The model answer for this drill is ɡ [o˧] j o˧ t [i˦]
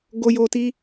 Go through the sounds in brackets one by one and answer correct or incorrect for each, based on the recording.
correct, correct

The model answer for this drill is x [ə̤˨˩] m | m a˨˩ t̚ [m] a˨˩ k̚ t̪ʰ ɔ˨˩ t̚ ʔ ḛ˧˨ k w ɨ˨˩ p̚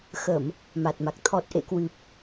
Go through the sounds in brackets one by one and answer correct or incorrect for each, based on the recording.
incorrect, correct

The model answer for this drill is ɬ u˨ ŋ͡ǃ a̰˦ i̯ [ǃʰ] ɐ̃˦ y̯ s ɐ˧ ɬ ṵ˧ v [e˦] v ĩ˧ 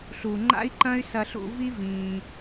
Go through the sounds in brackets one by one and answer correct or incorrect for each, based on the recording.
incorrect, incorrect

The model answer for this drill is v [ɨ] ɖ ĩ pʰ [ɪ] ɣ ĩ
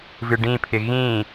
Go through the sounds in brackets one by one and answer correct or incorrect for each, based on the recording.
correct, correct

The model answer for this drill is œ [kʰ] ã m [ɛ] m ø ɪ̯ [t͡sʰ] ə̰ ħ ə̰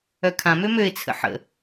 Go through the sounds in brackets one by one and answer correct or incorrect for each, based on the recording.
correct, incorrect, correct

